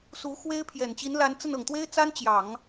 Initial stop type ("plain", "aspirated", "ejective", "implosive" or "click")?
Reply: aspirated